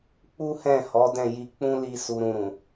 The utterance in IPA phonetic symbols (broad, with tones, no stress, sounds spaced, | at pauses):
k͡p u˦ h ɛ̃˦˨ h ɔ˨˦ d ɛ̃˦˨ j i˧ k͡p ũ˦ l i˧ s u˨ ɾ ũ˨ ɾ ũ˨